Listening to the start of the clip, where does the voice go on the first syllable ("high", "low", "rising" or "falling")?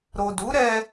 low